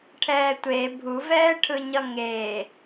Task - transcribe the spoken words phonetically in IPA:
ʈʰɛːtʷe bʱuvɛːʈʰɯɲʌ ŋeː

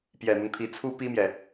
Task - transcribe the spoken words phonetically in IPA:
pjɛ˨˩n̪ɤ˦ŋt̪ʰi˧˥ t͡sʰu˥pi˥mjɛ˨

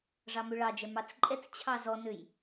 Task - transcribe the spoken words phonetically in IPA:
ʐɑmøɭɑd͡ʒɛ mɑt͡sǃʼɛt͡s t͡ɕʰɑzɔnøj

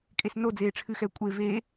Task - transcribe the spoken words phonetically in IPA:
kʼesnod͡zeː ʈ͡ʂʰɨxɛ kʷʼe veː

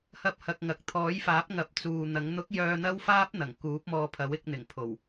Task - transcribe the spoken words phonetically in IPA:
hɐ˧p̚hɐ˨k̚ŋɐ˨k̚ t̪ʰɔː˨˥jfaː˨˥p̚ŋɐ˨p̚ t͡suː˨n̪ɐ˨˥ŋ n̪ʊ˨˥k̚ jœː˧n̪ɐ˥wfaː˥p̚ n̪ɐ˨˩ŋkuː˨˥p̚mɔː˧pʰɐ˨˥w ɪ˨˥k̚n̪ɪ˨˩ŋ pʰo˨˩w

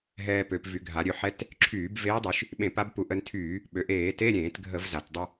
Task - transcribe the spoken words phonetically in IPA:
ɦɛː˧pø˩˧pvy˩˧ ɡʱa˩˧ ɾʲø˧ħɛ˧˥˧t | ǁʰyː˧˩˧b veː˧˥dˤy˩˧ʃ | ɓẽ˧˩˧p a˧˥bpu˧ ʔə˧ntʰyː˧˩˧ | ɓø˩ʔeː˧˩˧te˧˥˧ ɾʲẽː˧˩˧tɡʱə˧˩˧vza˩t dˤə˧

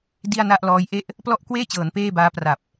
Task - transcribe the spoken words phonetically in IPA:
di˥˩a̯na˥˩ʔlɔː˦˥j ʔe˥˩ʔ | plɔ˥˩ʔkweː˥˩t͡ɕɤː˩˦n peː˥˩baː˦˥ pra˨˩p̚

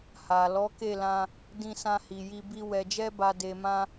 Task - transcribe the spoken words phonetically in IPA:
ha˨ lɔ˨˦ke˦˨lã˧ | dĩ˧sã˧hi˨ji˧ bi˧ wɛ˨d͡ʒɛ˧ba˨ de˨mã˧

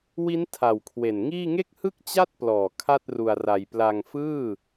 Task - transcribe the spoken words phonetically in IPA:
wi˦˥n tʰa˨˩wkʰwe˨˩nŋiː˥˩ ŋe˥˩k̚hɯ˥˩k̚t͡ɕa˥˩t̚plɔː˨˩ kʰa˥˩t̚ru˧a̯ra˧j pla˧ŋ fɯː˥˩

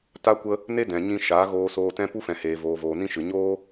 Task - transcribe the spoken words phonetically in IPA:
ta˦kʷə˦ | ne˦dɛ̃˨ɲĩ˧ʃa˨˦ ɣoː˧soː˧tɛ̃˦ pu˦fɛ̃˨heː˨ voː˨voː˨nĩ˧ʃɨ˨ ɲoː˦

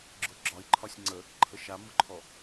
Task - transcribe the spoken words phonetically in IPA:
ɡ͡ǁʊɡ͡ǁɒi̯ǃʰɒsʲ ŋ͡ǀə | ǃʰəʃamʊǃʰɔ

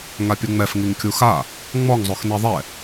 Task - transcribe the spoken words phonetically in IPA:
ŋapʲuŋ͡mɛf ŋiŋkʲuxa | ŋ͡mɔŋzˤox niðˤɛ

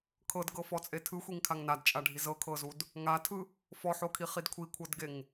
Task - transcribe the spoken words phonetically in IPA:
kʰɤdɡɤfɔt͡sʼe tʰɯxʷiŋkʰaŋ nadt͡ʃʼaɖʱi zɤkʰɤzud | ŋatʰɯ | fɔħokʰiχid kʷʰikʷʰɤdɡeŋ

